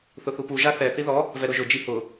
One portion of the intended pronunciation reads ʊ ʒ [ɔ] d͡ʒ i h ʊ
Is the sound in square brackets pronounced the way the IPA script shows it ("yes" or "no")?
no